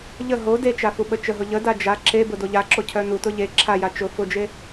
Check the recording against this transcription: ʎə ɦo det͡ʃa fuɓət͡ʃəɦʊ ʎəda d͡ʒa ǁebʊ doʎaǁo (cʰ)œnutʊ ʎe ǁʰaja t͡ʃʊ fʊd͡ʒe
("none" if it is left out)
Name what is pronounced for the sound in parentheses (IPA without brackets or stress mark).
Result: cʰ